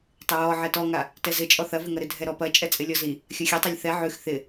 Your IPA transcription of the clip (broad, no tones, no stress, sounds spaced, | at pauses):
tˤ ɪ ɹ ɔ ʕ ɛ t ɔ ŋ a | t ɛ z ɪ t͡ʃʼ ɔ θ ɐ v ɪ ŋ ɐ ɾ ɪ dʱ ɛ ɾ ɔ p ɐ t͡ʃʼ ɛ t͡sʼ ɪ lʲ ɔ z i | xʲ ɐ xʲ ɛ tˤ ɐ lʲ θ ɛ ʕ ʉ x θ ɪ